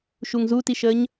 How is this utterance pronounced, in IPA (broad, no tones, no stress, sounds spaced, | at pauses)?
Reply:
ʃ u ŋ z u t i ʃ əː ɲ